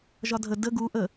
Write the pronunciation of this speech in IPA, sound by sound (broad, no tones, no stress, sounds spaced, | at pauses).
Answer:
ʒ ɒ dʱ ə d ə ɡ u ʔ ə